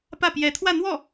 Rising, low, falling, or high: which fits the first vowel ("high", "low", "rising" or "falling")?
falling